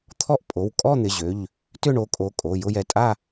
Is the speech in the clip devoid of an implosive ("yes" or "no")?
yes